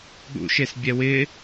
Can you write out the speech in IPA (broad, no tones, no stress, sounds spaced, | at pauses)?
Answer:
ɠ ṵ ʃ e s bʲ ɛ w ɪ